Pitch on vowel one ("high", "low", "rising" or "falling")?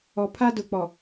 low